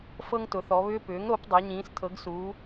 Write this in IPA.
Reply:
f ɤ˦ ŋ t ʊ˩˧ θ ɔ˩˧ β ʏː˦ p ʏː˩˥ ŋ ɾ o˩˥ p dˤ a˩˧ ɲ ĩː˩˧ s tʰ ɤ˩˧ ɡ s uː˩˧

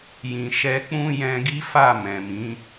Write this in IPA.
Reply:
j ĩ˨ ʃ ɛ˧ k͡p ũ˦ j ɛ̃˧ ɡ i˦ f a˦˨ m ɛ̃˨ m ĩ˨˦

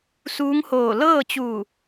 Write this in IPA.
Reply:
s uː˧˥ ŋ h oː˧˩ l ɤː˥˨ t͡ɕ uː˧˩

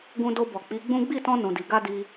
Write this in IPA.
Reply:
ɡ ũ˧ d o˧ b ɔ˨ k͡p i˨˦ ɡ͡b ũ˦ ɡ͡b i˦˨ t ɔ̃˧ n ũ˨ d i˨ ɡ a˧ d i˧

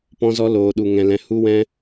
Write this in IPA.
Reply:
p ɔ̃˦ z ɔ˦ l oː˧ ɗ u˧ ŋ ɛ̃˧ l ɛ̃˧ h u˦ w ɛ̃˦

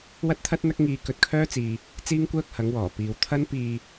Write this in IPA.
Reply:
w ɐ˥ t̚ t̪ʰ ɐ˥ t̚ n̪ ɐ˥ k̚ ŋ iː˧ k ɵ˧ t̚ kʰ œː˥ t͡s iː˨ | t͡s iː˥ ŋ kʷ œː˥ k̚ h ɐ˨˥ ŋ w ɔː˨˩ p iː˨ w t̪ʰ ɐ˥ n p iː˧

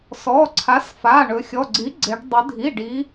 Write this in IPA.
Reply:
s ɔ˩˧˩ ǀʰ a˩˥ s f a˩˧˩ ɳ ɵ˩˧ xʲ ɔ˩˧˩ ɡ͡ǀ i˩˥ ɡ͡ǀ e˩˧ ɖ dˤ ɵ˩˧ dʱ i˩˧˩ ɖ i˩˧

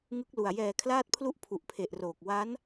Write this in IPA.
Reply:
ŋ ɯ˦˥ k̚ l u˨˩ a̯ j ɛː˨˩ kʰ l aː˦˥ t̚ pʰ l u˦˥ ʔ pʰ u˨˩ ʔ pʰ e˨˩ ʔ r oː˨˩ k̚ w a˦˥ n

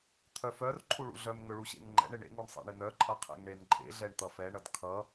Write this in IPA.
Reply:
t̪ʰ œ f œ r ǃʰ u ɭ ṵ ɮ œ m ŋ ɵ ɭ u ɕ ḛ ŋ ŋ͡ǃ ɛ̰ ɳ ɪ ɳ ḛ ŋ u ɳ sˤ ɛ̰ ɳ ɪ n œ ǃʼ ʌ qʰ ɛ̰ ŋ ɳ e n ǃʼ ḛ ɮ ɛ ɳ t̪ ʌ f ɛ ɳ ʌ d kʰ ʌ

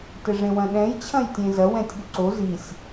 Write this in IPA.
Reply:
t ɘ ʐ ẽ w ɐ̃ ɗ ɛ̃ j t͡ɕʰ ɐ̃ j tʲ ẽ z ɐ w ɛ̃ tʲ ɠ u ǀ o z i sʲ

